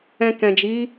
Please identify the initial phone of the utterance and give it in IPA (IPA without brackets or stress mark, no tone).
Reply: ɛ̃